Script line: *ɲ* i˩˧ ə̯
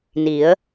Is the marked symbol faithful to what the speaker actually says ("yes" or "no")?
no